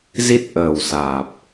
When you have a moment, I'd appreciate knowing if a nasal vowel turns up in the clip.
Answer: no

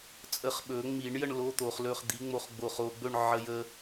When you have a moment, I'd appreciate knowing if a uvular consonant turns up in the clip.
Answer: yes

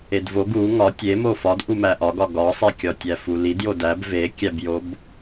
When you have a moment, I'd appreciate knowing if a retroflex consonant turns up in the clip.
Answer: no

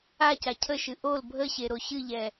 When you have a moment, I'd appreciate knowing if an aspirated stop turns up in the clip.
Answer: yes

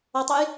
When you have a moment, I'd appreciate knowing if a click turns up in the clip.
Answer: no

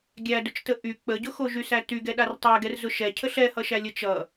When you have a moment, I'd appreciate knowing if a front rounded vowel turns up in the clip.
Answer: yes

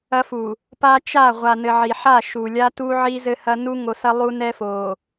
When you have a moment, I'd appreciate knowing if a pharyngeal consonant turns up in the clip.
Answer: yes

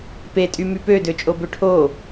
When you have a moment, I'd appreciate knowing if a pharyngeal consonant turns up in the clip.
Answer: no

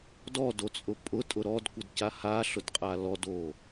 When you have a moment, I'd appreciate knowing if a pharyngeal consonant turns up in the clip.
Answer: no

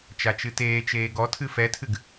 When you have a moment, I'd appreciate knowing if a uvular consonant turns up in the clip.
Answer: no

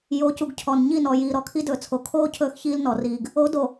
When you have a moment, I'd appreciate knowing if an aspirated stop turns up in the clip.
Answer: yes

